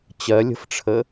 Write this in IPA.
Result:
t͡ɕ ɜ lʲ ə̤ f ʈ͡ʂʰ ə

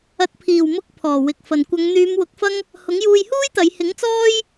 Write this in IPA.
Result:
ɐ˨˥ t̚ pʰ iː˨˩ w m ʊ˧ k̚ pʰ ɔː˨˩ w ɪ˨ k̚ f ɐ˨ n kʷ ɐ˨˧ ŋ n̪ yː˨˧ m w ʊ˨˥ k̚ f ɐ˥ ŋ | h ʊ˨˥ ŋ j uː˧ j h uː˥ j t̪ ɐ˨˧ j h ɪ˨˥ ŋ t͡s ɔː˥ j

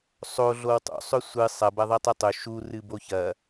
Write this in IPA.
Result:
sˤ o ɮ o w tˤ o̰ sˤ ɵ sʷ ɨ sˤ ɐ b ɐ ðˤ i tˤ ɨ tˤ ɵ ʃ u r ɨ b o ç ɐ

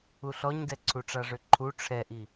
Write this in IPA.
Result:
u ɬ ɔ ɲ d ɛ ǀʰ u ʈ͡ʂ a ʐ ø ǃʰ u ʈ͡ʂʰ ɛ ʔ i

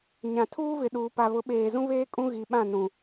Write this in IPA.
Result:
ɲ ã˨ tʰ uː˦ v ɪ˨ ɗ uː˨ p a˨ β ʊ˨˦ ɓ eː˨ z ũ˦ β eː˦ kʼ ũ˦ ɣ i˨ ɓ ã˦˨ n ũ˨

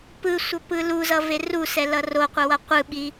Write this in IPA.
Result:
p ɯ sʷ ʌ p ɯ l u z ʌ v e r u s ɛ l ʌ r o qʷ ʌ w ʌ qʷ ɯ ɓ i

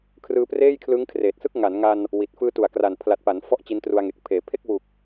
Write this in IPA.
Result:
kʰ r ɯː˧ p r eː˥˩ j kʰ l ɯ˦˥ ŋ kʰ r eː˨˩ t̚ s ɯ˥˩ k̚ ŋ a˩˦ n ŋ a˧ n | w i˨˩ t̚ f ɯː˧ t u˨˩ a̯ k r a˨˩ n pʰ l a˨˩ t̚ p a˩˦ n f ɔ˦˥ ʔ t͡ɕ i˦˥ n t r u˧ a̯ ŋ e˨˩ k̚ pʰ eː˩˦ pʰ e˥˩ k̚ w u˨˩ k̚

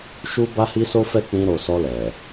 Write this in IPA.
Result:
ʃ u˦ b a˦ h i˦ s o˦ f ɛ˦˨ k͡p ĩ˧ ɾ o˨ s ɔ˧ l ɛ˨

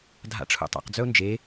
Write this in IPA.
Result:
dʱ a̰ ʈ͡ʂʰ ṵ tˤ a̰ q d͡z œ ʊ̯ n d͡ʒ e

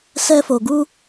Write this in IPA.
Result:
s ɛ˧ f o˨ ɡ u˧

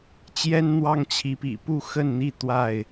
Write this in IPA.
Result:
t͡ɕ j ɛ˦ n n̪ w ɑ˦ ŋ t͡ɕʰ i˨˦ p ḭ˨˩ p u˥˨ x ə˥˨ n n̪ i˥˨ t̪ w a˥˨ ɪ̯

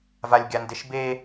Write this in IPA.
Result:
v a lʲ ɡʲ a n d e ʃ b e

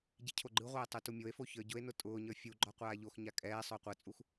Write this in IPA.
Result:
ɟ i cʰ o ɡ͡ǃ ɯ ʁʷ ɛː tˤ u t u mʲ o e̯ f o ç ə˞ ɟ ʊ e̯ n ʊ tʼ ʊː ɲ ə˞ fʲ u ɡ͡ǃ ɔ qʷ aː ʎ o x ɲ a kʼ ɛː sˤ ʊː qʷ ɜ t͡sʼ u x

